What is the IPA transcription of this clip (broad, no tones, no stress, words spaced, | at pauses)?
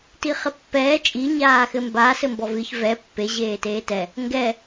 tiχɘpːɛː t͡ʃʼi ɲaːxɘmba sɘmbɔvɨç vɛ pːe ʑeːteːtɛ | ŋɡɛ